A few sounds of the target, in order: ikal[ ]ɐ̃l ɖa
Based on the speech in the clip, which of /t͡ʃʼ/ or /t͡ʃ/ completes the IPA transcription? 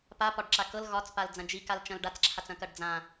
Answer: t͡ʃ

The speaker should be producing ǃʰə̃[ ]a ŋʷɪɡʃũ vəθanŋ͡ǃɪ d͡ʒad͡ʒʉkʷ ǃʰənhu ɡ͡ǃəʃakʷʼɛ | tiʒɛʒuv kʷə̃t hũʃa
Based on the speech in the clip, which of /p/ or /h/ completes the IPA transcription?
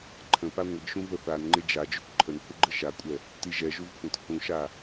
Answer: p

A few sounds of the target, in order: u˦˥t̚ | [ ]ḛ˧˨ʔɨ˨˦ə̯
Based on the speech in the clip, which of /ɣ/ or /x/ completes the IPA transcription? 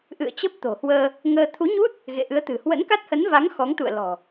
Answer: ɣ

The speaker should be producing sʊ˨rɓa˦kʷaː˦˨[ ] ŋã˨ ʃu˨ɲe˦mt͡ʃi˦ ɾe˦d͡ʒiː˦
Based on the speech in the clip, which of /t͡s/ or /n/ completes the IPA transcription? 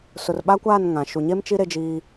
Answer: n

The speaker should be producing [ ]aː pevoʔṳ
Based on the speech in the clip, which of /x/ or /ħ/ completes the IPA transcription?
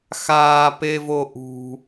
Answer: x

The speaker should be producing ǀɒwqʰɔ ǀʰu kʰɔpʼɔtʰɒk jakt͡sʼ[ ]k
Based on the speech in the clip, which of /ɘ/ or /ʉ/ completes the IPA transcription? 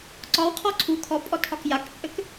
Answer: ɘ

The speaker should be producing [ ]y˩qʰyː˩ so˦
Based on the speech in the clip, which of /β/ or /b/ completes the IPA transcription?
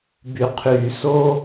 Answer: b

